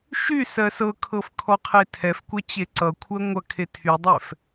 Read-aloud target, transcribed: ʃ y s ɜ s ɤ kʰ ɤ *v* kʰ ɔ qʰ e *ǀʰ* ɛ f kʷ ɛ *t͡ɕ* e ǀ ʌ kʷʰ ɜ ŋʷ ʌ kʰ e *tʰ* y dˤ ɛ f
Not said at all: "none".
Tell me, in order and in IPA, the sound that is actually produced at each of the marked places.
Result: f, tʰ, t͡ɕ, tʰ

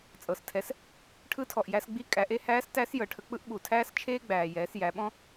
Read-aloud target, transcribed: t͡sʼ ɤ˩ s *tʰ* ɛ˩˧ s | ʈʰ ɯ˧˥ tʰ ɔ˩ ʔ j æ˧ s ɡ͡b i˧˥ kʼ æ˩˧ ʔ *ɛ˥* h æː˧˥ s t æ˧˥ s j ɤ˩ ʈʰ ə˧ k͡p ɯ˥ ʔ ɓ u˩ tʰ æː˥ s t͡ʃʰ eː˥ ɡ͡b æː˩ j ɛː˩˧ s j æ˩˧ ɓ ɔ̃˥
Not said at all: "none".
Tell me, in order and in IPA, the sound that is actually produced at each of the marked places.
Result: tʰ, e˥

